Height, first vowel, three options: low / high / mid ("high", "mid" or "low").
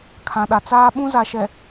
low